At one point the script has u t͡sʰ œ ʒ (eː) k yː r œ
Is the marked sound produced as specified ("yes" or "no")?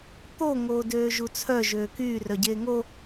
no